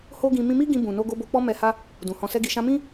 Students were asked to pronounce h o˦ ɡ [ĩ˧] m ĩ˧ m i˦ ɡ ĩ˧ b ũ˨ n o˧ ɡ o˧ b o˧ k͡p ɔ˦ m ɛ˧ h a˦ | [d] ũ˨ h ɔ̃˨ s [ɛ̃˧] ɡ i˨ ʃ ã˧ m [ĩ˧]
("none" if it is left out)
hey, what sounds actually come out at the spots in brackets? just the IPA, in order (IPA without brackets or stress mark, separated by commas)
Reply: ĩ˧, d, ɛ˧, ĩ˦